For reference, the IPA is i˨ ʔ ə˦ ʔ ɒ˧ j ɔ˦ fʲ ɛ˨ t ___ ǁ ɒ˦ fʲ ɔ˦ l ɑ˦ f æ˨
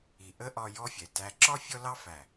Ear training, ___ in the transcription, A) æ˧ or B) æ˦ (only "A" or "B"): A